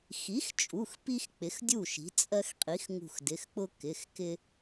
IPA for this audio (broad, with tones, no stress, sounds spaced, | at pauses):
x i˩˥ x t͡ʃʼ u˩˧˩ x p i˦ x k͡p ɪ˩˥ x dʲ u˥˩ ʃ i̤˩˥ t͡sʼ ɜ˦ x qʼ i˩˥ x ŋ ṳ˧˩ x d ɪ˩˧˩ x k͡p ʊ˦ k ɪ˩˧˩ x k ɪ˦